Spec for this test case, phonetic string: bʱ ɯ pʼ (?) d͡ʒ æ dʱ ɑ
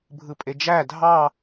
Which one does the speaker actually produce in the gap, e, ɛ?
e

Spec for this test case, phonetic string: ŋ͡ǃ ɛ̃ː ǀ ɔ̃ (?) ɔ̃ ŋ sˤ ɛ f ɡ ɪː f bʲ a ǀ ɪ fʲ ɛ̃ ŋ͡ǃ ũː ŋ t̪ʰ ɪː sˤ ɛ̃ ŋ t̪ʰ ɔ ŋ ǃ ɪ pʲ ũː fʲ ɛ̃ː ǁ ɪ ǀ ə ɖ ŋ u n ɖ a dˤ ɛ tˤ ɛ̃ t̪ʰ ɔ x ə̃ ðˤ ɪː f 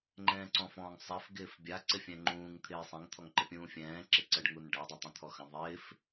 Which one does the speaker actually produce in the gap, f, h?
f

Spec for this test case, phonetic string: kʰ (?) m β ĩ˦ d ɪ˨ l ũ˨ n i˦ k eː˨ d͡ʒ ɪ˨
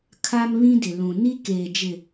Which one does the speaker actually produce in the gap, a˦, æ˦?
a˦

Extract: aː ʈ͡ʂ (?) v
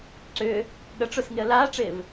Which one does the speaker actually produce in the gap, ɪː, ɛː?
ɪː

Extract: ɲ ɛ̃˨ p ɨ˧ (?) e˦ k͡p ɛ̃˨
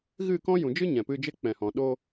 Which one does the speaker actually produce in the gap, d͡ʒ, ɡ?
d͡ʒ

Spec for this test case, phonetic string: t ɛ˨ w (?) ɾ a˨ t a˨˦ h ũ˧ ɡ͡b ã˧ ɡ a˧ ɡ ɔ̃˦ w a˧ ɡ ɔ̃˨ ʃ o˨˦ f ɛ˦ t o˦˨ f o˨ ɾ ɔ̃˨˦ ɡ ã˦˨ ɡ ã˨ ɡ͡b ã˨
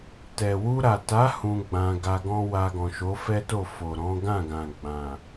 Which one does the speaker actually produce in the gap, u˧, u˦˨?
u˧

